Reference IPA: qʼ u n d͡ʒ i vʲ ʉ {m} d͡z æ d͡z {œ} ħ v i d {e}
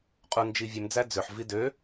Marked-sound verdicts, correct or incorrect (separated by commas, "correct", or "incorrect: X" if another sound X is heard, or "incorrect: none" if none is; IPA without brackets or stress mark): correct, incorrect: ø, incorrect: ø